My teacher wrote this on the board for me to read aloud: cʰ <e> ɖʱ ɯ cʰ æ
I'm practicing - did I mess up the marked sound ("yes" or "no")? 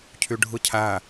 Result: yes